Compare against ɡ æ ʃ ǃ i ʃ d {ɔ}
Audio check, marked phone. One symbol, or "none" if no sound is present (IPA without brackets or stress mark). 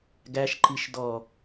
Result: ɔ